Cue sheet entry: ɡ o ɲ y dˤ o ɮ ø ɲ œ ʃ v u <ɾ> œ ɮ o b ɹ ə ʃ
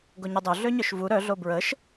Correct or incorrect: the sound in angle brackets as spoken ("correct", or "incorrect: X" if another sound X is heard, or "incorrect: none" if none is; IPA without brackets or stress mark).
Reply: correct